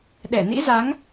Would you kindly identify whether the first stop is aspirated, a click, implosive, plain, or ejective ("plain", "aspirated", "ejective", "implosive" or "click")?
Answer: implosive